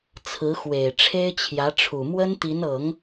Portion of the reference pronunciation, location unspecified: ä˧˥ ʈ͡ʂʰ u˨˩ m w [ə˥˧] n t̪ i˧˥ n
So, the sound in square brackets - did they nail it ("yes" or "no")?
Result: no